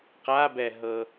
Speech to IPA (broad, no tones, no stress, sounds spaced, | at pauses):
q a b ɛ ɦ ɤ